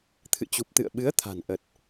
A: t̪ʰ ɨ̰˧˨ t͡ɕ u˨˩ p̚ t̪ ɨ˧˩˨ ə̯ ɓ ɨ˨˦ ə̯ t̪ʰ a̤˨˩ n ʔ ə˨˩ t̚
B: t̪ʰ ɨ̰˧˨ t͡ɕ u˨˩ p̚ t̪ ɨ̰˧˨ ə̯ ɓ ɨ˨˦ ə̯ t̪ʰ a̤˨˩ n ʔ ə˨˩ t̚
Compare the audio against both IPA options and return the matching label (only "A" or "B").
B